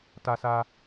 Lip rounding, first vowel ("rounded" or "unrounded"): unrounded